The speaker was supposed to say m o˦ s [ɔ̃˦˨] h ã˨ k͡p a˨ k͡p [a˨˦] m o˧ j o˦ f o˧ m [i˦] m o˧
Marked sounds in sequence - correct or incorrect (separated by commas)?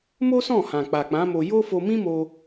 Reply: correct, incorrect, incorrect